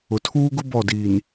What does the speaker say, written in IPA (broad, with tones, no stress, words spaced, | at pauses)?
ʊ˨tʰuː˦ɡʊ˦ bɔ˦˨diː˨n